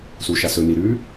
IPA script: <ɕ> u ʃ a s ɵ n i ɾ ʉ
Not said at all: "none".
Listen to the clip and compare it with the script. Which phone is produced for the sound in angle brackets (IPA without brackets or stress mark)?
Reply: s